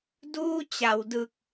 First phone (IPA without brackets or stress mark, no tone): d